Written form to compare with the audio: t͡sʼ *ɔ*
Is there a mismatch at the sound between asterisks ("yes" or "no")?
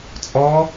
no